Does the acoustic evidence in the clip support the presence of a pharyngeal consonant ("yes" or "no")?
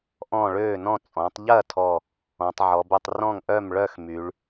yes